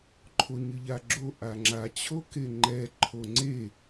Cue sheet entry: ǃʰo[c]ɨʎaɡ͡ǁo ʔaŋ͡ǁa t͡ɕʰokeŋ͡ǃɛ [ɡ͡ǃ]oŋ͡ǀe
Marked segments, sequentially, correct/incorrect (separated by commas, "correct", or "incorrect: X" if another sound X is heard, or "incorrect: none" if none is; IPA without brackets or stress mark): incorrect: ɲ, incorrect: ǃʰ